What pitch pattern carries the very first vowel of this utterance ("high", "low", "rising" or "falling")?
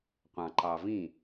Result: low